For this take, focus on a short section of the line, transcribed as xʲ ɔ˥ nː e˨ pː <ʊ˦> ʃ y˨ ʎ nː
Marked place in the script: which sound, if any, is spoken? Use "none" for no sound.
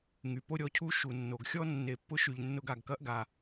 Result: ʊ˦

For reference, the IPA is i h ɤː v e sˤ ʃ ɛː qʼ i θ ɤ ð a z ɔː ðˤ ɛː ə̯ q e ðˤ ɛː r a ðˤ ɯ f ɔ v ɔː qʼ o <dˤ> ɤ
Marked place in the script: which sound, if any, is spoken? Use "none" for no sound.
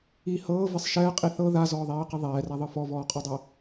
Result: dˤ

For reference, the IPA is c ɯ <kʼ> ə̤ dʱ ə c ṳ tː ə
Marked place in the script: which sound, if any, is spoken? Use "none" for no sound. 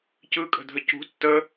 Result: kʼ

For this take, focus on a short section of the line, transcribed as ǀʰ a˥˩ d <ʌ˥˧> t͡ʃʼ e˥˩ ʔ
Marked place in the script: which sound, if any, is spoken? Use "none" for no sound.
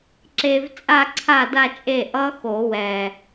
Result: a˥˧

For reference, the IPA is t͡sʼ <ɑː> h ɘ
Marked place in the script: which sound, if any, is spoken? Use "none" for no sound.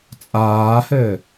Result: aː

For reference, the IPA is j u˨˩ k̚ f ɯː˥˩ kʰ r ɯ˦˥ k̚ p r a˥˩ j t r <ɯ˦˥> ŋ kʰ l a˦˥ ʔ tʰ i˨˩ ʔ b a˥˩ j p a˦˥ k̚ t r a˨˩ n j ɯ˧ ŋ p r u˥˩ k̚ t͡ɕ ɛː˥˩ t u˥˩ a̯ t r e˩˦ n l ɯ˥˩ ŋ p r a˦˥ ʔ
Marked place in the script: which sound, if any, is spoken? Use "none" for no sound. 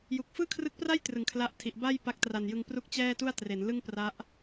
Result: ɯ˩˦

